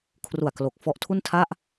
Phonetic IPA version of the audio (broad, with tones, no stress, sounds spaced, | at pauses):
kʰ r u˨˩ a̯ k l o˨˩ k̚ f ɔ˦˥ ʔ tʰ u˥˩ n tʰ a˥˩ ʔ